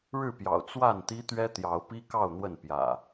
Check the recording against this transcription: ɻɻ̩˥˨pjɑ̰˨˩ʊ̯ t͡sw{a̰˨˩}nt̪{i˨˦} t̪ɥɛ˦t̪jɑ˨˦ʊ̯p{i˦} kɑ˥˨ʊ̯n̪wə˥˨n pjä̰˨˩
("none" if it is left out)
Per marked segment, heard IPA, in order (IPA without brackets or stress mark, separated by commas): a˥˨, i˦, i˦